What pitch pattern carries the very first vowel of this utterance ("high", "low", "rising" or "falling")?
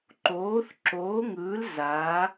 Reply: rising